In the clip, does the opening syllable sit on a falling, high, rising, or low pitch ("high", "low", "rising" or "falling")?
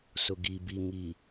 low